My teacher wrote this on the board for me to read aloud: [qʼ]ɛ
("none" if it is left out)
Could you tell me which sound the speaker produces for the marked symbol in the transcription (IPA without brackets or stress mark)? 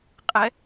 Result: qʼ